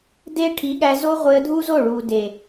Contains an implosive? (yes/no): yes